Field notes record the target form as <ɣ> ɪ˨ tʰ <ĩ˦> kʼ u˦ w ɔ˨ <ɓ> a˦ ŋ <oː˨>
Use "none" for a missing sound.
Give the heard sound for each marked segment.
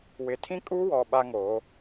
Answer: w, ĩ˦, ɓ, oː˨˦

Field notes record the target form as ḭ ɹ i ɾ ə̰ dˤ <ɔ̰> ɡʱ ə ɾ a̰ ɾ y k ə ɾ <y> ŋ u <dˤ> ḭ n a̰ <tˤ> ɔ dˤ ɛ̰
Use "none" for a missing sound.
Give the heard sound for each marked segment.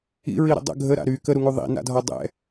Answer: ə̰, u, ðˤ, dʱ

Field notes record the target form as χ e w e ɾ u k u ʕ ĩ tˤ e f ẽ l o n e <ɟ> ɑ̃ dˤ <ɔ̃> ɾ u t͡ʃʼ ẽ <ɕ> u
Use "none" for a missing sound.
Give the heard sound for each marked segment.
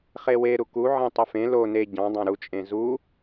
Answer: ɟ, ɑ̃, z

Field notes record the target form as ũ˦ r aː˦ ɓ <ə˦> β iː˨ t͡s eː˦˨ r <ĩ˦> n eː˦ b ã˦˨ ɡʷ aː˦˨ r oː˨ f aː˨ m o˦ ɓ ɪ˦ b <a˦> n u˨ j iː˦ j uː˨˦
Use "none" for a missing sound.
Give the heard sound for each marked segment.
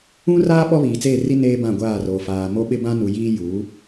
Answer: ɔ˦, i˦, ã˦

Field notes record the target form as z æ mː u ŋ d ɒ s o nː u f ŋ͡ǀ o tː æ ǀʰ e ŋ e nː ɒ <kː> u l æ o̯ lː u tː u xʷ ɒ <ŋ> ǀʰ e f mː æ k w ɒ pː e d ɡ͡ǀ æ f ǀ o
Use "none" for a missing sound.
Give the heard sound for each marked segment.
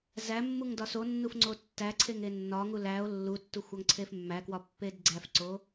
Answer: ŋ, ŋ

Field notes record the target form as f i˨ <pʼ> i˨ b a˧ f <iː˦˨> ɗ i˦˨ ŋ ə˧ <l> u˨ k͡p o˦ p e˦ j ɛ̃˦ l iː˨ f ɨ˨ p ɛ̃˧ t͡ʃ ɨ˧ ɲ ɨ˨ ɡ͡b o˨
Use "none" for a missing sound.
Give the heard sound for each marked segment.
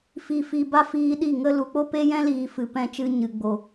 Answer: f, iː˧, l

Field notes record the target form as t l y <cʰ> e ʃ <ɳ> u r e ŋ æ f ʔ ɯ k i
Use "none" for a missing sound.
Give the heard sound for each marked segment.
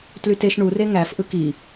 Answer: t, ɳ

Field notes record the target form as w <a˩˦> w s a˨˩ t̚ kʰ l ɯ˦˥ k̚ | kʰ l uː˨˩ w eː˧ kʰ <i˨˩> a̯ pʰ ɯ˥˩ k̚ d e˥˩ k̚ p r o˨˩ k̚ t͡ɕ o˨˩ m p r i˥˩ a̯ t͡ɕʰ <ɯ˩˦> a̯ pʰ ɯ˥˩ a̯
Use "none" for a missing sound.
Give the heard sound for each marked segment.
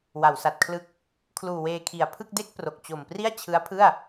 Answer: a˩˦, i˨˩, ɯ˦˥

